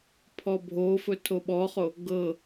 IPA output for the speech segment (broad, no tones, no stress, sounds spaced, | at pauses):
pʰ ɔ bʱ o f ɵ tʰ o ɓ ɔ χ o | ɡ ɤ